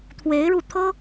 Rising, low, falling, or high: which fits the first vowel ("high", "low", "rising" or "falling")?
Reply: rising